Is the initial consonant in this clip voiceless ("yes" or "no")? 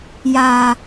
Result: no